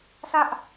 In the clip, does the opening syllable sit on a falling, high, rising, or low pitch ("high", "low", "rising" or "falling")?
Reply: high